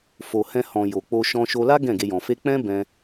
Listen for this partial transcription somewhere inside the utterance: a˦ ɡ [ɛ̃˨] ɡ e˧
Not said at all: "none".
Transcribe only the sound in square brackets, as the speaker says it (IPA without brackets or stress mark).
ɛ̃˦˨